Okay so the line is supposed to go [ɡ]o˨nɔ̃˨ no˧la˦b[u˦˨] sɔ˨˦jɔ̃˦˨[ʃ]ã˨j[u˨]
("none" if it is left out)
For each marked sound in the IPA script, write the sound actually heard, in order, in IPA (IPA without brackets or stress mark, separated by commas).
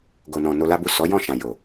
ɡ, u˦˨, ʃ, o˨